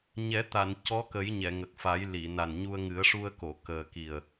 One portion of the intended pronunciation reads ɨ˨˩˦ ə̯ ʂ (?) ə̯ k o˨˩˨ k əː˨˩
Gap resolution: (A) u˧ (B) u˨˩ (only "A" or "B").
A